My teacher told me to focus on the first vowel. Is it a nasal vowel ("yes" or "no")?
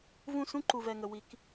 yes